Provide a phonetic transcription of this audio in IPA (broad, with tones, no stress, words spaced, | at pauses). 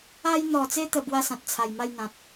a˧jn̪ɔ˨˩t͡se˧t̪ə˨˩ bwa˥˧sã˨t̚t͡sʰa˨˩jma˥˧j n̪ã˨t̚